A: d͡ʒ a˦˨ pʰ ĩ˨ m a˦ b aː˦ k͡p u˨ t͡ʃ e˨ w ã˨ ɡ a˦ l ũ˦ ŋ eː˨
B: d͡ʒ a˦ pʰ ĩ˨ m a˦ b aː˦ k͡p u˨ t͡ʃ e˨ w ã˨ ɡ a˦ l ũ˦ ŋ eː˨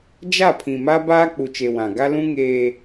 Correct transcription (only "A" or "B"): A